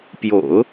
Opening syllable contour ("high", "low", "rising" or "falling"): low